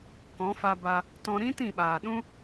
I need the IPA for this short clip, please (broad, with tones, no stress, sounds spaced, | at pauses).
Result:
k ɔ̃˨˦ f a˧ b a˧ | t ɔ̃˧ ɾ ĩ˦ t ĩ˦˨ ɓ aː˨ ɗ ũ˦